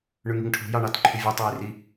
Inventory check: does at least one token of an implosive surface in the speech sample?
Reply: no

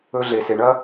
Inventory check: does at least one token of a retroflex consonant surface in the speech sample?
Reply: yes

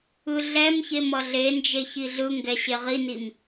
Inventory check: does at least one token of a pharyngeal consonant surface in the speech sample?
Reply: no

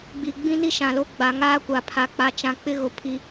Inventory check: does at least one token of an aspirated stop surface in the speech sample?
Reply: yes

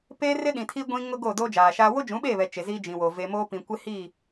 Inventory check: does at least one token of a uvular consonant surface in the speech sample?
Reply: no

